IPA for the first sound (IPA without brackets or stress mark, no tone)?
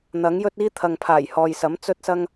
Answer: n̪